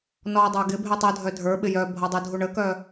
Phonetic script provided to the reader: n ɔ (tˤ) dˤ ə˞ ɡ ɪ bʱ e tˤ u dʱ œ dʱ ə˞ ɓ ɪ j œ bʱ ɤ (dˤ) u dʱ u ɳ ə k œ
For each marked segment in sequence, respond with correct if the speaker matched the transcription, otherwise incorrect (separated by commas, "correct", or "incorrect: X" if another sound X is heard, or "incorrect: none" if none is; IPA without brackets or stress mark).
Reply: incorrect: none, correct